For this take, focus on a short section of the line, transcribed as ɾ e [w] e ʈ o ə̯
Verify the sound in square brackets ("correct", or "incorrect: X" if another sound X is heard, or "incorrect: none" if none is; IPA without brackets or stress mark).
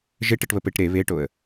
incorrect: β